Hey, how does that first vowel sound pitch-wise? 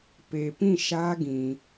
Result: low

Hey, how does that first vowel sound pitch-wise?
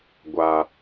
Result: low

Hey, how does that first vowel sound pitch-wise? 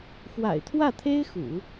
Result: low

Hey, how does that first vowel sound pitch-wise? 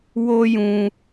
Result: high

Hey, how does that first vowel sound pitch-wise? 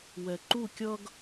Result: low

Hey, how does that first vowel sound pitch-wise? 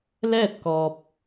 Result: falling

